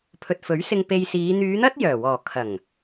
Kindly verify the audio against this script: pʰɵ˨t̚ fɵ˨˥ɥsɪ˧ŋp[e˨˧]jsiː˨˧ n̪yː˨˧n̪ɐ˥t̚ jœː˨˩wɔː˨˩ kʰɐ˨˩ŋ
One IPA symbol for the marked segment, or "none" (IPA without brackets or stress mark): e˧